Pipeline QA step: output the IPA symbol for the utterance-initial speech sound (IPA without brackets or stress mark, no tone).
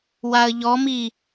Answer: w